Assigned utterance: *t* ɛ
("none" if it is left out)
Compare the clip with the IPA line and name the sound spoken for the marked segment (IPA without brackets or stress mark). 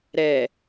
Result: ɾ